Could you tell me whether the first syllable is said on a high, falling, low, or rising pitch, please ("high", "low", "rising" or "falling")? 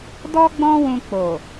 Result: high